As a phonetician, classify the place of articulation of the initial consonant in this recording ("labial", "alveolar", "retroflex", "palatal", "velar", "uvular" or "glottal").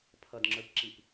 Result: labial